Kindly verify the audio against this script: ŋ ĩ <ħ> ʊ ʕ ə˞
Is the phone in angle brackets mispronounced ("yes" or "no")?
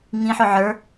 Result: no